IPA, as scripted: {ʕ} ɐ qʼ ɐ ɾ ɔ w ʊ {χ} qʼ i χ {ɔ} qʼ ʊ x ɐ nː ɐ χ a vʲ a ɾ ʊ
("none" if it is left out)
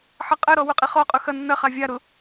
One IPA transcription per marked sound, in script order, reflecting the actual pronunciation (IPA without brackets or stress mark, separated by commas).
ħ, none, ɔ